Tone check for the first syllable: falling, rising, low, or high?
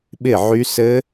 falling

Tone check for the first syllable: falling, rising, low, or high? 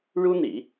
high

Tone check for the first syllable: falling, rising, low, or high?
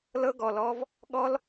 high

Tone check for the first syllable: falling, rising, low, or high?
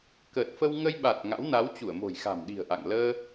low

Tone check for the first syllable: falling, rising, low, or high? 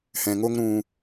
low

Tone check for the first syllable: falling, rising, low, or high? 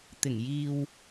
low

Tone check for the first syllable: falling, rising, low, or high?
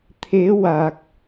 rising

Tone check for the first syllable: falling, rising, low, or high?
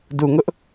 low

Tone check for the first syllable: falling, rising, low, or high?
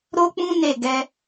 high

